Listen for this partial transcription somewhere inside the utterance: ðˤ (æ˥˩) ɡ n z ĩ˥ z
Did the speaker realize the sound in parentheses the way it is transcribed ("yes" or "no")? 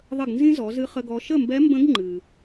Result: no